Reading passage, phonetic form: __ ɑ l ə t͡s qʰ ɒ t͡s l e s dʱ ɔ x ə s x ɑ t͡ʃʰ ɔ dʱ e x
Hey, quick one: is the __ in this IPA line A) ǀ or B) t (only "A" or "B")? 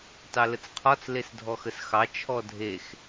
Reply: B